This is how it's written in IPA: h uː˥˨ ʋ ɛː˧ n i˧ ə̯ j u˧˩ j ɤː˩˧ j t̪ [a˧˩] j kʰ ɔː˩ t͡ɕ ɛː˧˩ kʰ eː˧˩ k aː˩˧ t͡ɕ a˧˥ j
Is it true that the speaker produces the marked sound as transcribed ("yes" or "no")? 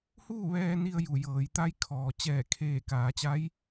no